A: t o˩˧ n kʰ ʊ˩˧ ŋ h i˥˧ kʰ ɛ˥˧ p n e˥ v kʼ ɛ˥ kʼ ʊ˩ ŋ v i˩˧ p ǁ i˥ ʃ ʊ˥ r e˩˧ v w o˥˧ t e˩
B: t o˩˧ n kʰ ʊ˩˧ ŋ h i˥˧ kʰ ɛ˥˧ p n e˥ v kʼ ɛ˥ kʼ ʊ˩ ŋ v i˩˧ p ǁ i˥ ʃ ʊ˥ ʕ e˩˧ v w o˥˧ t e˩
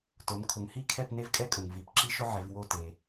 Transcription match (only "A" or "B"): B